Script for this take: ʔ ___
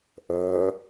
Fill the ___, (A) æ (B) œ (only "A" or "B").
B